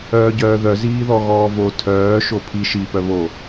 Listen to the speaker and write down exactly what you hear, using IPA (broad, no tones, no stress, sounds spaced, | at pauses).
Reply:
œː ɟ œː ð œ z iː ð ɔ ɣ ɔː v o tʰ œː ʃ o pʰ i ʃ i p œ β o